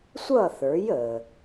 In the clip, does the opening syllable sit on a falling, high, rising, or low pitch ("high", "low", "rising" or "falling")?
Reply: falling